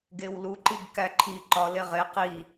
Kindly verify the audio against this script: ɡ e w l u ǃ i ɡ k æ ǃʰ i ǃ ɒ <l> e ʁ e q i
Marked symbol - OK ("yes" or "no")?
yes